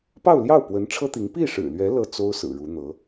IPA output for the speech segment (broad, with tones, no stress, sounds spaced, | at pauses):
p ɑ˥˧ ʊ̯ l j ɑ˥˩ ʊ̯ p w ə˧˥ n ʈ͡ʂʰ ɤ˥ t̪ i˧˥ ŋ p i˥˩ ʂ ɻ̩˨˩ l ɥ ɛ˧˥ l ɤ˥˩ t͡s o˥ ʊ̯ s ɹ̩˨˩ ɻ u˧˥ n̪ ɤ˧˥